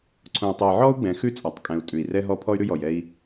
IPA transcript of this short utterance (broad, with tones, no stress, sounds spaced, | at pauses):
ǀʰ õ˨ u̯ tˤ ʉ˨ j ʕ ɔ˦ u̯ ɡ͡b ɛ̃˨˦ x ʉ˦ t͡sʼ ɒ˨ tˤ kʼ ɛ̃˨ u̯ tʼ ʉ˨ i̯ r ɛ˦ ɦ ɔ˦ pʰ ɔ˦ y̯ ɾ ʉ˦ j ɔ˨ j ɛ˦ i̯